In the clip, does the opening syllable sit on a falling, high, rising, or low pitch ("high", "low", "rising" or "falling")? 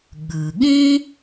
low